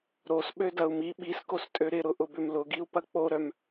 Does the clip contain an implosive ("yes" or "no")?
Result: yes